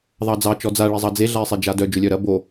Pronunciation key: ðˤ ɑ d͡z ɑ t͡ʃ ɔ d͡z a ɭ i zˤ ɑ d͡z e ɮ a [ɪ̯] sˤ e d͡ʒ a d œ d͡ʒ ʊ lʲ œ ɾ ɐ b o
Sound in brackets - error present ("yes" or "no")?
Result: no